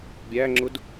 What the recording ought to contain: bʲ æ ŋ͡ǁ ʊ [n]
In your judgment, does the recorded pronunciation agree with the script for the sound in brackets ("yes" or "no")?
no